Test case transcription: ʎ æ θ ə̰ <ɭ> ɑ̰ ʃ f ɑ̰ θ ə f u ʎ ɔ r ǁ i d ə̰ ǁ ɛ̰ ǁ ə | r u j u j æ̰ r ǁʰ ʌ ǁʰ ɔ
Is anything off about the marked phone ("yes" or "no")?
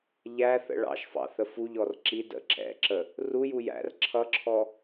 no